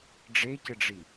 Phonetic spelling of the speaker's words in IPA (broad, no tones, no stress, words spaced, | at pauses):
ɖ͡ʐecɘɖ͡ʐi